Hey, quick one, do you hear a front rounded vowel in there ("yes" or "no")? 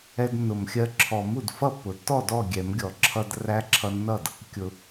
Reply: no